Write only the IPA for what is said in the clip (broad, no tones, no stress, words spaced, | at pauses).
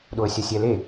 ɗoə̯sʲɐsʲɛle